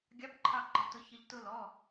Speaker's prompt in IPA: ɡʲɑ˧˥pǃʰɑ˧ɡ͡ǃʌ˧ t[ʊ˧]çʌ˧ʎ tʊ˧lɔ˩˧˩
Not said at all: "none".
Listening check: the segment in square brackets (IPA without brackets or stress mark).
ʊ˧